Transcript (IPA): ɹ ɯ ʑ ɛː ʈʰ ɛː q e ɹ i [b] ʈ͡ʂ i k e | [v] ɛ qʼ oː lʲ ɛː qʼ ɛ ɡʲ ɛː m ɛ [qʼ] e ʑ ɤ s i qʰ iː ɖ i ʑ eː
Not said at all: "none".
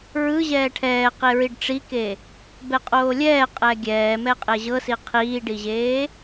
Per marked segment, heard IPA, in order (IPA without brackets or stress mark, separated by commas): ɖ, b, qʼ